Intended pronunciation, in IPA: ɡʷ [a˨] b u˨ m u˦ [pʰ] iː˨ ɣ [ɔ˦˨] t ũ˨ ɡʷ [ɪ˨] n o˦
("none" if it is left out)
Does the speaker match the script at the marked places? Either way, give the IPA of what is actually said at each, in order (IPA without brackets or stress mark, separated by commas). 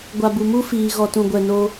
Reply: a˨, f, ɔ˨, ɛ˨